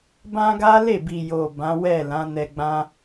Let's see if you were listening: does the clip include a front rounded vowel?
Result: no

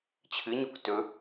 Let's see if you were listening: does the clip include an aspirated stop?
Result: yes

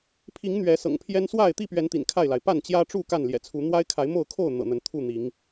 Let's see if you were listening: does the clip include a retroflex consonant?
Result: yes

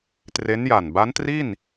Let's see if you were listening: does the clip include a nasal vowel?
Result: no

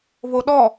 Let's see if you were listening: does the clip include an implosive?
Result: yes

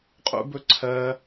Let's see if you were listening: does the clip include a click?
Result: yes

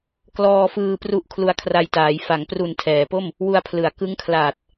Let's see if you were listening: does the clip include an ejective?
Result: no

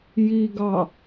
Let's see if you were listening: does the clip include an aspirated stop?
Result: no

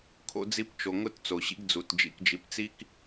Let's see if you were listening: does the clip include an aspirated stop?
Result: yes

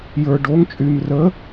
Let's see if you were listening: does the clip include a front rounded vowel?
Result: yes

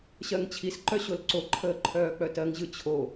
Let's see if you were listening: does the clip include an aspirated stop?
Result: yes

